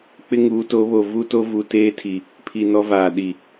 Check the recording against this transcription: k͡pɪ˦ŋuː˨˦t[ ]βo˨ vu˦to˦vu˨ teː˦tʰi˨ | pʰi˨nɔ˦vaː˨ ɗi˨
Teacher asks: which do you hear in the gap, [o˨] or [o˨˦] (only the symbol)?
o˨˦